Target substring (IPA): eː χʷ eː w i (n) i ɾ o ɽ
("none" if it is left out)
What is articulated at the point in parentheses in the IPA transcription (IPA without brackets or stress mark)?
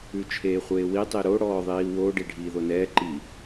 tˤ